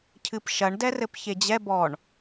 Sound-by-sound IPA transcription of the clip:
cʰ ɨ p ʃ ɐ ɳ d ɛ r ɘ p ç e d͡ʑ ɛ b ɔ ɳ

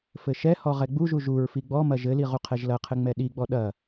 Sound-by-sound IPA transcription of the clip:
f ɘ ʃ ɛ h ɔ ʁ ɛ ɡ͡b u ʒ u ʒ u ɹ f i ɡ͡b ɔ m ɐ ʒ ɘ l i ʁ u qʰ ɛ ʒ l ɐ qʰ ɘ ŋ͡m ɛ ɗ i ɡ͡b ɔ ɗ ɐ

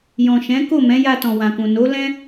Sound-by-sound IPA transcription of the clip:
j ɔ̃˨ ʃ ɛ̃˨˦ k o˦˨ m ɛ̃˨˦ j a˧ t ɔ̃˨ w ã˨ k ũ˨ n o˨˦ l ɛ̃˦

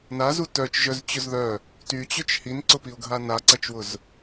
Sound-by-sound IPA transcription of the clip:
n a z u t œ t͡ʃ ʒ œ z t͡ɕ ʊ z ð œ | t y t͡ɕ ʏ t͡ʃ h i n ǀ ʊ p i ʊ̯ ɡʱ a n a ǀ ɐ t͡ʃ w ʊ z

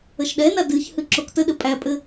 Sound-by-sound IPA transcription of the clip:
ə ʃ ɗ ɛ n a d ɨ ç h ɨ ǁ o k t ə ɗ ɘ pʼ æ pʼ ɘ

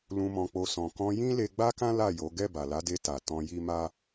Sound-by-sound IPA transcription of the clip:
l ũ˨ m ɔ̃˨ k͡p o˨ s ɔ̃˨ k ɔ̃˧ j ĩ˦ l e˧ ɡ͡b a˦ k ã˦ l a˦˨ j o˨˦ ɡ ɛ˦˨ b a˨ l a˨˦ d e˧ t a˨ t ɔ̃˧ j i˦ m a˦

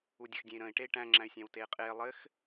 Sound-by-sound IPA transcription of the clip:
u dʲ ə x dʲ ẽ i̯ ɾ ə̃ː i̯ ʈ e i̯ ʈ æ̃ ŋ͡ǁ æ̃ y̯ sʲ æ̃ w t eː qʼ eː lˠ ɘ x

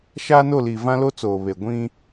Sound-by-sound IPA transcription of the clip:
ʃ aː˦ n o˦˨ l iː˨ v ã˦ l o˦ t͡s oː˨ β e˨ ɡʷ ĩ˦

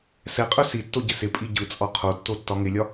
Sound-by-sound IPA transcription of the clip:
s ɛ qʼ œ s i tː o ɟ ɪ s ɪ pʼ i ɟ ɯ t͡sʼ ɒ qʰ o tː o tː ɒ ŋ ɪ lʲ ɒ

